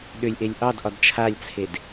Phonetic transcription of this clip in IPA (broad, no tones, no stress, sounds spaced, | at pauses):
ɗ ʏ lʲ ʔ e lʲ ʔ ɑ d ʔ ɒ d t͡ʃʰ a lʲ t͡sʰ e d